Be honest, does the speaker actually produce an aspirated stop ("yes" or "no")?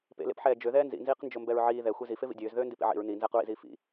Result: no